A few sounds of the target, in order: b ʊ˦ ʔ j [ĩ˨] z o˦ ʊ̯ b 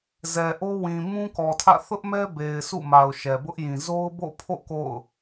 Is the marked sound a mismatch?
no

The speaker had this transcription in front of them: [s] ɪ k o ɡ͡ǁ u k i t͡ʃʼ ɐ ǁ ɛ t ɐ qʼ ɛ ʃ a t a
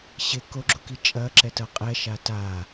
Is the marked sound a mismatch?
yes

